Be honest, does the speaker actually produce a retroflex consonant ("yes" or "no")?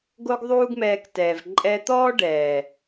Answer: yes